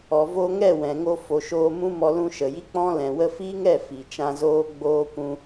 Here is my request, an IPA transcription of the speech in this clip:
ɔ˨vo˧ŋɛ˦˨ wɛ̃˨ŋo˧ fo˨ʃoː˧ mũ˦mɔ˧ lũ˧ʃə˨ji˦k͡pɔ̃˦ lɛ̃˨wə˧fi˦ŋɛ˦˨ fi˨t͡ʃã˧zoː˦ ɡ͡boː˦kʷũ˦

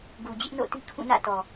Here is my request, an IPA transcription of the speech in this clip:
ɡu˨d͡ʑɪ˦ʔno̰˦˨ti˦ kʰũ˦˨nä̰˦˨ tɔ˨

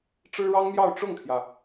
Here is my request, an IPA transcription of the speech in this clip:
ʈ͡ʂɻ̩˥ɻɑ˥ŋmjɑ˥˧ʊ̯ ʈ͡ʂʊ˥˩ŋt̪ʰjä˩

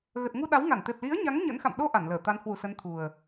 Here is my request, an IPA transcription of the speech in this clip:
ɣə˨˩t̚ ŋu˧ɗa˨˦wŋa˧˩nt̪e˨˩p̚ li˨˦ə̯ɲa˨˦ŋ ɲə̰˧˥nxa̰˧˨m ɗo˧ ʔa˧˩nləː˧˩ t̪a˨˦n hwu˧˩sə˨˦nt̪ʰu˨˩ə̯

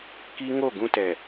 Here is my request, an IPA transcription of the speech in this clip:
ki˦ ŋo˦˨ɡũ˦tɛ˨

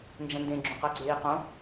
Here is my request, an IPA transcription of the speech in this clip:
nd͡ʒɐ̃ndẽ ɡ͡ǁõqaɡ͡ǀeːqõ

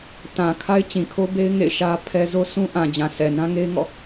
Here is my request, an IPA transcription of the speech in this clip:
tã˨ kʰa˦ɪ̯ t͡ɕĩ˨kʰo˦be˦ɪ̯ ŋḛ˦˨ɪ̯ʃä˦pʰɛ˦ zo˦sʰũ˦ ʔã˨d͡ʑã˨ sʰɛ˨nã˦ŋe˦ɪ̯ŋɔ̰˦˨

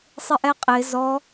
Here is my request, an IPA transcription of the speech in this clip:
sˤɪʔɛqʼɪ zɔ

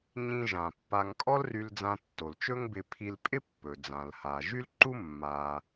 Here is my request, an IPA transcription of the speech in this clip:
ɲĩ˧ ʒã˩pːa˧ŋ kʼɔ˥lry˧l d͡zã˧tːo˩lt͡ʃɵ˥ŋbɪ˧ pʰi˧lpʼɪ˥pːɵ˩ d͡zã˩lha˩ʒy˥lǃu˥ mːa˩

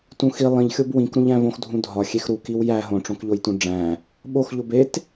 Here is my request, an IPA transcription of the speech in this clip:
tũxi lˠĩʎxʲob wĩkɾũʎæ̃ võxdʱũdʱɒ xʲexɾu kiwjæ ɦõʈ͡ʂõkʎojtũ ɖ͡ʐæ̃ | ɓoxʎob et

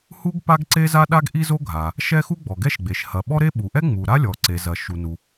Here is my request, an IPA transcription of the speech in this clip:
hu˥ɡ pa˥ɡǀe˥ za˥ɗa˥ɡ ʔi˥zo˥ɡʱa˩ | ʃɛ˥xu˥ ɡ͡bɔ˩ɡɛ˥ʃɡ͡be˩ʃ hɐ˩ɓɔ˥ɾe˥ ɓu˩ʔɛ˥ ŋ͡mu˩ ɾa˥ lʲɔ˩ǀe˩zɐ˩ ʃu˩nu˩

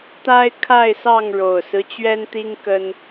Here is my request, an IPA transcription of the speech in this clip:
t̪a˦ɪ̯kʰa˥˨ɪ̯sɑ˥˨ŋ ɻo˨˩ʊ̯sɹ̩˦t͡ɕɥɛ˦nt̪i˦ŋ kə˦n

